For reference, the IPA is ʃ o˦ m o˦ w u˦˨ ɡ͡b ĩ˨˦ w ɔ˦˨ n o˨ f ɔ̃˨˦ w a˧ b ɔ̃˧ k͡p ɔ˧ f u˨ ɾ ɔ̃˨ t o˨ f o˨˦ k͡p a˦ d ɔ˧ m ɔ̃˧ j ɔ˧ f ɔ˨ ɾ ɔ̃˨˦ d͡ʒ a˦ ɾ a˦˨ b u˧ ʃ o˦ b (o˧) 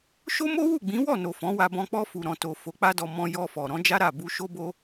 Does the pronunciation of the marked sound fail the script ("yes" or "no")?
yes